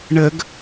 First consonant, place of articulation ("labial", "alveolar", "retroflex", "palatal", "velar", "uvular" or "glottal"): retroflex